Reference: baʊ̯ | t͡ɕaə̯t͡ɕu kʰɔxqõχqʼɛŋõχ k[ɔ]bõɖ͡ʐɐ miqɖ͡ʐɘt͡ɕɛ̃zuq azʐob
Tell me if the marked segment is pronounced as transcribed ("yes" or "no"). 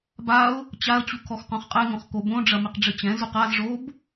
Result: no